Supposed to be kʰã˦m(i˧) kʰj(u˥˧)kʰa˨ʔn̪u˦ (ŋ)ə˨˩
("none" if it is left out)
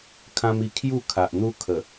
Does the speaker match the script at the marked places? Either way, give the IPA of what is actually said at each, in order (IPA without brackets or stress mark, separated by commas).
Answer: i˧, u˥˧, kʰ